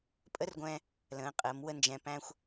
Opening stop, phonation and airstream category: ejective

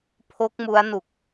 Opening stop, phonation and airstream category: aspirated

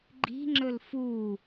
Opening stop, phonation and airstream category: click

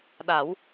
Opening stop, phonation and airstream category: implosive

